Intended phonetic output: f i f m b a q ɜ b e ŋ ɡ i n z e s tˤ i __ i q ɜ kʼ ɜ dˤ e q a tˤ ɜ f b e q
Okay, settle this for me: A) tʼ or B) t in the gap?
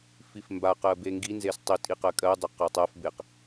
A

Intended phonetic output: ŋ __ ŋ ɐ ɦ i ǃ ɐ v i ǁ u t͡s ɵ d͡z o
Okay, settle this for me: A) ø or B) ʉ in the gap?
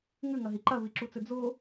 B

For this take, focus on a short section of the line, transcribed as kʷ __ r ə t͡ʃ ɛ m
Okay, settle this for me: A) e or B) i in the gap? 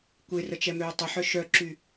A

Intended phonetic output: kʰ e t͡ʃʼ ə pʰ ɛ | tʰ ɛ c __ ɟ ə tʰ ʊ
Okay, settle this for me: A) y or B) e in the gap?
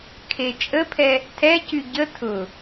A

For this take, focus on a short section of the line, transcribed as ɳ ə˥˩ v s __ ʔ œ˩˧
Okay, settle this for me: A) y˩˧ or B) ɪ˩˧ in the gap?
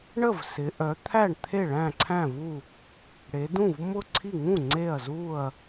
B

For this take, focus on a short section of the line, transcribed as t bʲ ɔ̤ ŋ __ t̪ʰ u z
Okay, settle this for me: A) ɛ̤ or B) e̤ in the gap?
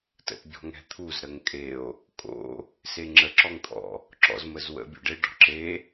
A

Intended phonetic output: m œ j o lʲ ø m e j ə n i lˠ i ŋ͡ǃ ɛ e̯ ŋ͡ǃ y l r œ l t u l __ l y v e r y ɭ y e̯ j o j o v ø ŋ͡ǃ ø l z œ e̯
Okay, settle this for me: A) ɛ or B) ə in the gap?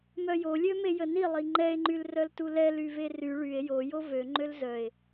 A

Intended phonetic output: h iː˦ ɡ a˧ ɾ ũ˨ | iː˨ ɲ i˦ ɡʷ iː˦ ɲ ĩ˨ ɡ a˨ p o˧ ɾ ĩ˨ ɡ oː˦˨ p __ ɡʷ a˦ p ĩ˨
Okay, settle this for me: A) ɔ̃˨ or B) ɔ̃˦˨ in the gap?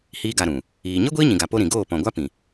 A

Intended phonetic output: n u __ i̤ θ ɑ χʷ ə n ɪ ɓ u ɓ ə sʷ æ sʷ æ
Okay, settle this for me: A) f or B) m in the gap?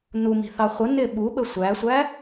B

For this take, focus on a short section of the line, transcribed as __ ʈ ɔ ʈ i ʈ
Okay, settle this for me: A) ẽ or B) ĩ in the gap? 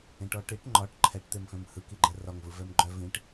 A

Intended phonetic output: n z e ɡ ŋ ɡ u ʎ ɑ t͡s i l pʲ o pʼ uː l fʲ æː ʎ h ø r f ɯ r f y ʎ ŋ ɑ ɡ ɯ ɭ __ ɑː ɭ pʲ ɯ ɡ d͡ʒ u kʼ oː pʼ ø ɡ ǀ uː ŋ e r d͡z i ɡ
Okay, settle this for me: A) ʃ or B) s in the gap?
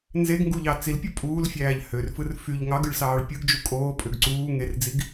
B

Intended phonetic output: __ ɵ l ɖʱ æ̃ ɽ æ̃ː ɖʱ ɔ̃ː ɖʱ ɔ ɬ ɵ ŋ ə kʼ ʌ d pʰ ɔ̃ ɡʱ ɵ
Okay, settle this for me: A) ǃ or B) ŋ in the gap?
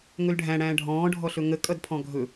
B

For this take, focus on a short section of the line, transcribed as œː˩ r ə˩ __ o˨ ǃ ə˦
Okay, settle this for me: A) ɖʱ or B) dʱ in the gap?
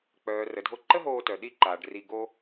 B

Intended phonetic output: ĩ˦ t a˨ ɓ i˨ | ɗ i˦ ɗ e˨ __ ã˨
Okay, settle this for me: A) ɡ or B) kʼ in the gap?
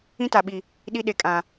B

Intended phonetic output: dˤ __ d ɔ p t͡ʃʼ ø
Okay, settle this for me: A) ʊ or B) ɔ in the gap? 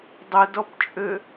A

